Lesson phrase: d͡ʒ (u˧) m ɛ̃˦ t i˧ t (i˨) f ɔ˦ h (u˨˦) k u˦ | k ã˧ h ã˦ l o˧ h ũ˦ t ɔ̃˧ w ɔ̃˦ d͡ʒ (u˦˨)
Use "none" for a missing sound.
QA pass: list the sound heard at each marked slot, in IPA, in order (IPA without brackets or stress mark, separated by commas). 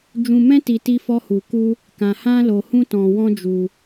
ũ˧, i˦, u˧, u˧